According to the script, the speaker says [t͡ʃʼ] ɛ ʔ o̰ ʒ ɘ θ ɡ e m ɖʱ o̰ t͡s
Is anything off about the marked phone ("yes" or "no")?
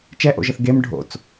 yes